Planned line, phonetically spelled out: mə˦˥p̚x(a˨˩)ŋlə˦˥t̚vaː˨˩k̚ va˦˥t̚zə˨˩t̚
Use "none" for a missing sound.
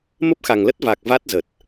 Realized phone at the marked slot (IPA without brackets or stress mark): a˨˩